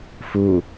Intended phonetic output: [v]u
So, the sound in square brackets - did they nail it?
no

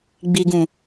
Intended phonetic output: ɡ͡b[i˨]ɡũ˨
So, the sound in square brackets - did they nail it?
yes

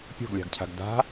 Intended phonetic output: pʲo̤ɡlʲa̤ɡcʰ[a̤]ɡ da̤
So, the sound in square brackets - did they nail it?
yes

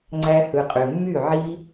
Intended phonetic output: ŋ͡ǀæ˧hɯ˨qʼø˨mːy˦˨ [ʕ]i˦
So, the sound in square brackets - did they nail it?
yes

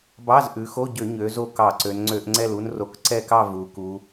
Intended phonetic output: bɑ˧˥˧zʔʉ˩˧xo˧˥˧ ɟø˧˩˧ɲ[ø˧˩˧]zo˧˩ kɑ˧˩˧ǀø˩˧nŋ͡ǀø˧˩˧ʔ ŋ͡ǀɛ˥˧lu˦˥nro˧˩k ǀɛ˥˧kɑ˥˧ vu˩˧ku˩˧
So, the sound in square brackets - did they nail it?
no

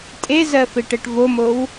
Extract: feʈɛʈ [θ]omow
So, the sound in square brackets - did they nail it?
no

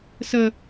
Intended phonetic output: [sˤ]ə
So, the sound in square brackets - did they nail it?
no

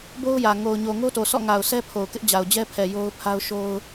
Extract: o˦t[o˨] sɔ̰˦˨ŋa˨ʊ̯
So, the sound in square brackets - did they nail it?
yes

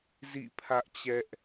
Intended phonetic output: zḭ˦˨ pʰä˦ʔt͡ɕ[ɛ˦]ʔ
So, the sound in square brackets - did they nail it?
yes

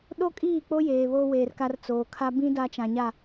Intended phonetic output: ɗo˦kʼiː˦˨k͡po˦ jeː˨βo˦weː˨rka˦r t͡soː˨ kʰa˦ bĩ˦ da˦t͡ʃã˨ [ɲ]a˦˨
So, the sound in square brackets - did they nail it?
yes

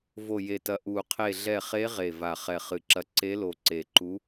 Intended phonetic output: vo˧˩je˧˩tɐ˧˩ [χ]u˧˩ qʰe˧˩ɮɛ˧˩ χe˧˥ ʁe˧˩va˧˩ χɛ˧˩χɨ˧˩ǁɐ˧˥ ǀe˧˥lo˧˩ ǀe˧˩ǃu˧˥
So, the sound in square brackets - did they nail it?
no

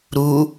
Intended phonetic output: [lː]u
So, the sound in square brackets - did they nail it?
no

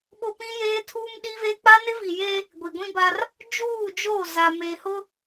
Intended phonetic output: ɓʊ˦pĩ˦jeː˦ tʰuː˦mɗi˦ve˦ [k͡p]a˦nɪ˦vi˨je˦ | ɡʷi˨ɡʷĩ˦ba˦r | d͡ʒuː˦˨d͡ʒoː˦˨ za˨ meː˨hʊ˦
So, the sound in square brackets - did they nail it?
yes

